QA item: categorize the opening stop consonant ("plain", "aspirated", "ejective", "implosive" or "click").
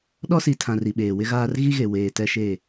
implosive